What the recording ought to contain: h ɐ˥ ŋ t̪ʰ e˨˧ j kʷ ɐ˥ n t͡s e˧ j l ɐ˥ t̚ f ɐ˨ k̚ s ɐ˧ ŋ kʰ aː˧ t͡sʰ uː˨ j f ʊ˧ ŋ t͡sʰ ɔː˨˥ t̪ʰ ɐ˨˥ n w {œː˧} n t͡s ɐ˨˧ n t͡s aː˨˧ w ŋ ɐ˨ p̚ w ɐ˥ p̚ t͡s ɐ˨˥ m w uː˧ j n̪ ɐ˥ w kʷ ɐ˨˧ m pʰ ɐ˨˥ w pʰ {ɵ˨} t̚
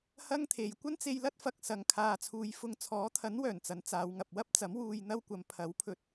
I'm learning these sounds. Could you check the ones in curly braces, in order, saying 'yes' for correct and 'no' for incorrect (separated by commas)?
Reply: no, no